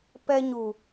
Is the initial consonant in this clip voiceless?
yes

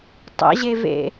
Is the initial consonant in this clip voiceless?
yes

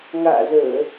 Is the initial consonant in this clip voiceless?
no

